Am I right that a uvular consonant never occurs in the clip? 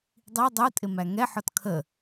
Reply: yes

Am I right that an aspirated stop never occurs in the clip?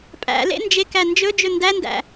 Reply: yes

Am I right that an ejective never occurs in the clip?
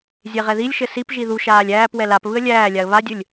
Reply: yes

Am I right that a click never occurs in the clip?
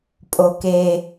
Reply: yes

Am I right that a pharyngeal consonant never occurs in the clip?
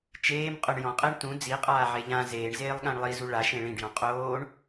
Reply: no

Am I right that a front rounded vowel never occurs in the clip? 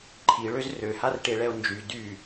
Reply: no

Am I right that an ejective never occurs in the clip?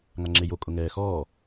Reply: no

